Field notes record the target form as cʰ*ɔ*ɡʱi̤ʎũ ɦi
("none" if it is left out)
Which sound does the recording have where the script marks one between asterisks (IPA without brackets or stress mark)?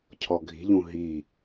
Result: ɔ